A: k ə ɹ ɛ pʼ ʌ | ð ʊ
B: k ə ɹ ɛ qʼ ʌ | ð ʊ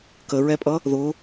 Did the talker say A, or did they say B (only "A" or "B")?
A